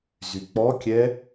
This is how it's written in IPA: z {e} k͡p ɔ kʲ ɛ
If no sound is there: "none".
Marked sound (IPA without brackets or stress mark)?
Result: y